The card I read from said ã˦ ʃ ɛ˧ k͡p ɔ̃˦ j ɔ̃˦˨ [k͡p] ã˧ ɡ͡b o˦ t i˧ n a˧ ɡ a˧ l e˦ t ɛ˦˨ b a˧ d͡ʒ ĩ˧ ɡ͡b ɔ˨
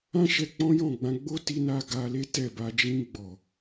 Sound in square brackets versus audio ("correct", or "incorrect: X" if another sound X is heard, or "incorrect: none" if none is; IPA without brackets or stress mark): incorrect: ɡ͡b